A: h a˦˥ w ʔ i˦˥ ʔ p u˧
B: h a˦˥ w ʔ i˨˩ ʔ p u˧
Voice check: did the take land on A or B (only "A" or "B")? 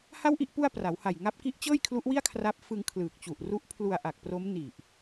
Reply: B